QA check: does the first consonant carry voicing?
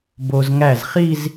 yes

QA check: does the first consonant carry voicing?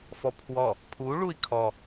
no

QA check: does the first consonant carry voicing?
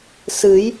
no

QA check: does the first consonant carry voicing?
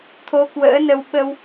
no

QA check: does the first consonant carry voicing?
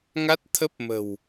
yes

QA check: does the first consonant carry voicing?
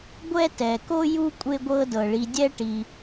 yes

